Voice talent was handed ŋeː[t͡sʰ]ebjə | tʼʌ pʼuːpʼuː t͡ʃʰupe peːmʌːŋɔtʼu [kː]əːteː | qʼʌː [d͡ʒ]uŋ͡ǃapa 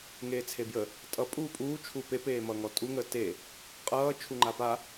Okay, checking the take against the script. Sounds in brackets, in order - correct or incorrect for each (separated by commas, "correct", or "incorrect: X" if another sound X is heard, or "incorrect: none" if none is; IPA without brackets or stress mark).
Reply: correct, incorrect: ŋ, incorrect: t͡ʃʰ